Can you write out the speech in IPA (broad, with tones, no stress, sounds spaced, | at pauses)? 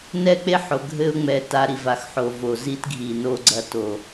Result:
n ɛ˦˨ k͡p e˦ ħ o˨ ɡʱ ɘ˦ ʊ̯ ŋ͡m ɛ˧ t a˧ ɾ i˨ v a˨ x ħ o˨ v o˨ z i˦ t ɡʱ i˨ n o˧ ɡ͡ǀ ɐ˧ t o˨